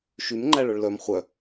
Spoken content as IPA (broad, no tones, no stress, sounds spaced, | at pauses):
ʃ y m ŋ͡ǃ æ ɭ œ ɭ l œ m χʷ œ